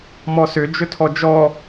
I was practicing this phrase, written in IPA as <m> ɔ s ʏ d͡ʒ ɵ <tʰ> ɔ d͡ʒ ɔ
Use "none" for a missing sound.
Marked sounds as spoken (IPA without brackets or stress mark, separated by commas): m, tʰ